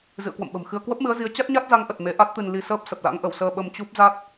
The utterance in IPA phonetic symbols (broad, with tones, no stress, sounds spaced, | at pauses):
z ɨ̰˧˨ ə̯ k w ə̰˧˨ m ɓ ə̤˨˩ m x ɨ˧ ə̯ k w ə˦˥ p̚ m ɨ˨˦ ə̯ z i˨˦ ə̯ t͡ɕ a˦˥ t̚ ɲ a˦˥ t̚ z a˨˦ ŋ ʔ ə˨˩ t̚ m e˨˦ ʔ a˦˥ t̚ t̪ ɨ˧ n l i˧ s əː˦˥ p̚ s ə˨˩ p̚ l a̰˧˥ ŋ ʔ ə˧˩ w s əː˧ ɓ ə˧ m t͡ɕ u˦˥ p̚ z a˦˥ t̚